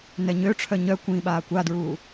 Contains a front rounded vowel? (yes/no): yes